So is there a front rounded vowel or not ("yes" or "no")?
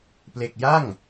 no